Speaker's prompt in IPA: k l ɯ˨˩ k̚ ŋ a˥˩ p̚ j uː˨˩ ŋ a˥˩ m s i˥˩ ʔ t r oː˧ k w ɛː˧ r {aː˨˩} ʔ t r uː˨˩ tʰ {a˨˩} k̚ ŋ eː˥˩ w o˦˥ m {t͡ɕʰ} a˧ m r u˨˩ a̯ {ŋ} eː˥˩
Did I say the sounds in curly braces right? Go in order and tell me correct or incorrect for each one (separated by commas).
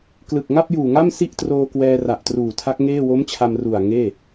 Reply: incorrect, incorrect, correct, correct